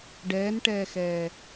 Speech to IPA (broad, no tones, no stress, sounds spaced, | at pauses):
ɖ ɛː n ʈ ɛː x ɛː